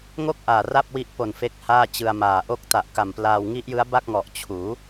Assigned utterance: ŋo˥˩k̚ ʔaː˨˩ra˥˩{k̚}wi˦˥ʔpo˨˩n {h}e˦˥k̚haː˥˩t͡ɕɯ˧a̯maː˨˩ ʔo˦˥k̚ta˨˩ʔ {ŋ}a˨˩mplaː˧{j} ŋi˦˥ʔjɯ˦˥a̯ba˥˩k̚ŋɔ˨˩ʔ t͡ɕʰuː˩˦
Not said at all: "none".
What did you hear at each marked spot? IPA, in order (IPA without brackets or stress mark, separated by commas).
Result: p̚, f, k, w